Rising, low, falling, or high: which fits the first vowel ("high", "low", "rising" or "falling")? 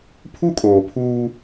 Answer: high